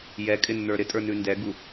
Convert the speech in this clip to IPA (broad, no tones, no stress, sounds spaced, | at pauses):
j ɛ kʼ ɪ nː ə˞ ɾ ɪ tʼ ə˞ n ʉ n d ɛ ɡ u